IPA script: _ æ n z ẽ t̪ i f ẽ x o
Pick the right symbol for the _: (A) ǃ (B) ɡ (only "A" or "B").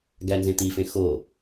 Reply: B